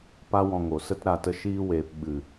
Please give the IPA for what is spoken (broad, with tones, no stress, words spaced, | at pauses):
pa˦wɔ̃˧ŋo˨sə˦t ɾa˧tə˧ ʃiː˦weː˧p ɓɨ˨